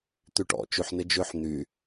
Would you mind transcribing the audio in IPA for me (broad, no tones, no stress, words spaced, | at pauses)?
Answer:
t̪yʈɔ̰ t͡ʃyħ nɪd͡ʒʏħ n̪y